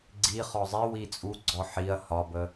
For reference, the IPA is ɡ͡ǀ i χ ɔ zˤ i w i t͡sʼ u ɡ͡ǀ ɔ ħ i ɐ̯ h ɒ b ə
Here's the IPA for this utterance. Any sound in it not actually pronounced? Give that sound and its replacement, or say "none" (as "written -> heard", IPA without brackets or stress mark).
none